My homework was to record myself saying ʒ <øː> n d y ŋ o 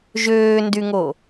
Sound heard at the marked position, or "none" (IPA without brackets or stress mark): øː